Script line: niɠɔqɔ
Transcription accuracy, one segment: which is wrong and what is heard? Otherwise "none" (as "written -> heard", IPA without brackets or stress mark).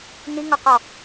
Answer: ɠ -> ŋ